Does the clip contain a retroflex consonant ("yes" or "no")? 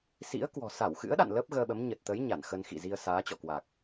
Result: no